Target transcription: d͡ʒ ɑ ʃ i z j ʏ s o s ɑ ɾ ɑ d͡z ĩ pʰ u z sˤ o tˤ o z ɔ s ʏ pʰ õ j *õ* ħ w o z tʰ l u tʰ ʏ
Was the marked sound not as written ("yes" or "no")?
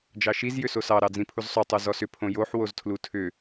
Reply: yes